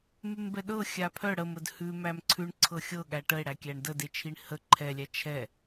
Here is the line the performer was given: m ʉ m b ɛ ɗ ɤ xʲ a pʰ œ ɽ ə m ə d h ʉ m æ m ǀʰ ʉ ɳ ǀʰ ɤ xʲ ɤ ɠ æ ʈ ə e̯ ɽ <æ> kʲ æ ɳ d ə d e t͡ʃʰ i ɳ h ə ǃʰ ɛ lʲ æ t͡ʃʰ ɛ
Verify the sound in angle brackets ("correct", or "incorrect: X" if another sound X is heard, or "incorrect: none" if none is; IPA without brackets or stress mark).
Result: correct